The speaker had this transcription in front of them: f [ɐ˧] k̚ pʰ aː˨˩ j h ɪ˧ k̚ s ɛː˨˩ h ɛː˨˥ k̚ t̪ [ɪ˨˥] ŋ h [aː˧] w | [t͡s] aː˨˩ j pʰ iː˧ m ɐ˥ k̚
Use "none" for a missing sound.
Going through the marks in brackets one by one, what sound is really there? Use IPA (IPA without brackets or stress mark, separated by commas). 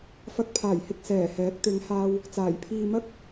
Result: ɐ˧, ɪ˨˧, aː˧, t͡s